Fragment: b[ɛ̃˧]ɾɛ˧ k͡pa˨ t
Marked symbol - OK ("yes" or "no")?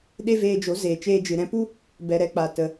no